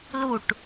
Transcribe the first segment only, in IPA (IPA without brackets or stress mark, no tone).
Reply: l